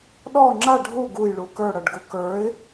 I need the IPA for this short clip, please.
ɗ ɔ ŋ͡ǁ a ɖʱ u ɡ u j ɭ u k ə˞ ɽ ʌ ɖ ɡ u k ə˞ ɪ̯

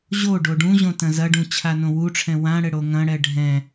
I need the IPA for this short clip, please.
ʑ o ɖ o ɖ ũ ʑ õ t ɐ̃ z ɐ ɖ ũ t͡ɕʰ a n õ w u ʈ͡ʂʰ ɛ̃ w ã ɽ ɘ ɽ o ŋ ɐ̃ ɽ ɛ ɖʱ ɛ̃

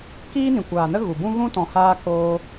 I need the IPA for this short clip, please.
k iː˦ n ĩ˨ kʷ aː˨ n ə˦ ɣ u˨ b ũ˦ ɣ ũ˦ t ɔ̃˨ h aː˧ k oː˧

